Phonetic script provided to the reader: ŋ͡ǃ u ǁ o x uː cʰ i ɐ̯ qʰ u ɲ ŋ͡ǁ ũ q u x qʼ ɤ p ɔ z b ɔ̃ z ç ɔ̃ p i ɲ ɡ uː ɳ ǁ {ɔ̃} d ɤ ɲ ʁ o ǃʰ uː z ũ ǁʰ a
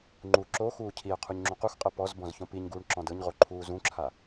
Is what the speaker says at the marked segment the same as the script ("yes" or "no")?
yes